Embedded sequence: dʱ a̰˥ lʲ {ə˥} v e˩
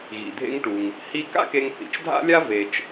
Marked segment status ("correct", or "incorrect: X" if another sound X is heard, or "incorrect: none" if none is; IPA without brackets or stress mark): incorrect: a˥